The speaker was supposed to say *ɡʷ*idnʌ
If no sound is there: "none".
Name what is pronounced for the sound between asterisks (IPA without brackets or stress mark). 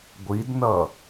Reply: ɡʷ